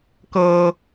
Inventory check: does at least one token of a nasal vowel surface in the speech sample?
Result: no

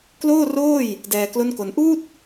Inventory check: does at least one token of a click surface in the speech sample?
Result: no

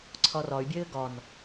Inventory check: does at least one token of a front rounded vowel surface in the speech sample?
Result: yes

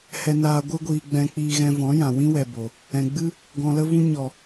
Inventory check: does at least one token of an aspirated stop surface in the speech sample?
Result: no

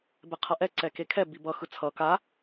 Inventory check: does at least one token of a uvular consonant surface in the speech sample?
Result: yes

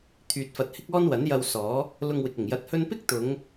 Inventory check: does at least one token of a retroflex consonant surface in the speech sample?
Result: no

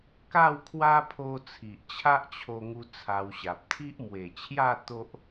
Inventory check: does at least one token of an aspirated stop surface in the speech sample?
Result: yes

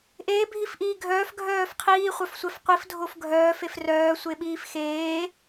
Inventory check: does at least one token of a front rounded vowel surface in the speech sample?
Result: yes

